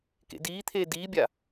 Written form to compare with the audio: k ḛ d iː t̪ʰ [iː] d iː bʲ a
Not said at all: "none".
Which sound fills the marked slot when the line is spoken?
eː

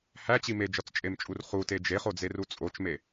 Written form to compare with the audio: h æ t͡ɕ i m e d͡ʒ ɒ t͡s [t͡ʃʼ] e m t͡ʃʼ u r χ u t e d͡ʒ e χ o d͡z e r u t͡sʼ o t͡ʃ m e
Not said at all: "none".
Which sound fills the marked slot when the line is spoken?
t͡ʃʼ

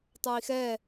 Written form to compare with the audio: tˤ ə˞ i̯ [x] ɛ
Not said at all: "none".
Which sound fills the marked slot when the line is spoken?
x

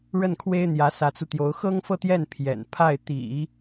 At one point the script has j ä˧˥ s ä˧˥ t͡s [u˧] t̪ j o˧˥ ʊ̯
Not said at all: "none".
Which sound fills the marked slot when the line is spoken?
u˧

